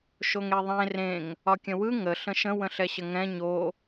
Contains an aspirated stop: no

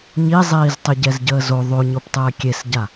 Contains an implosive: no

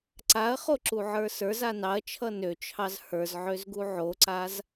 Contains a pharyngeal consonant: yes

